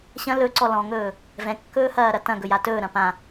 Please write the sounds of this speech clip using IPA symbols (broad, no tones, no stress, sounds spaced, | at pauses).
ɕ ɐ̃ l ɵ ǀ ɔ l ɔ̃ ŋ ɵː | v ɛ̃ kː ɵː h ɐː ɾ ɐ t ɐ̃ ɡ ɵ j a t ɵː ɾ ɐ̃ p ã